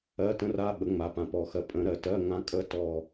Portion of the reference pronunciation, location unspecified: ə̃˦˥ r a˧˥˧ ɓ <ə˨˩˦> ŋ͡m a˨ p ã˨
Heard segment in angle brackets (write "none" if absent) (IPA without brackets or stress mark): ə˨˩˦